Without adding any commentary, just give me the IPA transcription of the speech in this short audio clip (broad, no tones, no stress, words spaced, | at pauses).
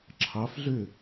ǁʰɑfɮø